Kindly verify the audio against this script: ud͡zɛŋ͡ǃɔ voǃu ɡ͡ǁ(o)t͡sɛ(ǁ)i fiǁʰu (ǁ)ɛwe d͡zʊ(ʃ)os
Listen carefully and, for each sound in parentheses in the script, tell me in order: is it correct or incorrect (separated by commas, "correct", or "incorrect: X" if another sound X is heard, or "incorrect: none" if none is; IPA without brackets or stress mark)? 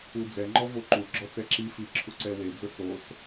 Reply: incorrect: ɔ, correct, incorrect: ǀ, incorrect: s